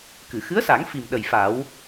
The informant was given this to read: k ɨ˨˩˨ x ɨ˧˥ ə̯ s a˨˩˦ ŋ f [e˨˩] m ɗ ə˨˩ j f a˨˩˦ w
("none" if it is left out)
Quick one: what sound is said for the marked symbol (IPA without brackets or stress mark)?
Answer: i˨˩